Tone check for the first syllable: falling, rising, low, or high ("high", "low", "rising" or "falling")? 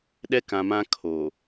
high